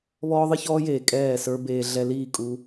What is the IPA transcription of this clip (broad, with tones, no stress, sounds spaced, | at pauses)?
β ɔː˦ ðˤ ɨ˦ ç ɔː˦ j eː˨ kʼ ɛː˦˨ s ə˞˦ b eː˧ ɮ ɛ˧ l iː˦˨ kʼ u˧